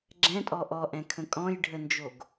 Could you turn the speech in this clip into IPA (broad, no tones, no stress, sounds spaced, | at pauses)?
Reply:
ɡ͡ǁ ɛ̃ tʼ ɔ ʔ ɔ ʔ ɛ̃ kʰ ə̃ kʼ ɔ̃ j ɖʱ ə n d͡ʒ o ɡ